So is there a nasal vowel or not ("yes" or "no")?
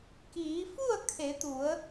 no